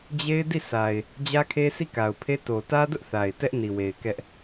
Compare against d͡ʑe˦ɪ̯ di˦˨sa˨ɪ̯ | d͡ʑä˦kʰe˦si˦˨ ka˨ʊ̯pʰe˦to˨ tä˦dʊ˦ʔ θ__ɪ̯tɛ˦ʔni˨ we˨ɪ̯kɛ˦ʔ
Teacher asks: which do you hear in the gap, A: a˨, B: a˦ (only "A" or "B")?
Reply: A